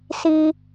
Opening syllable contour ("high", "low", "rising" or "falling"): high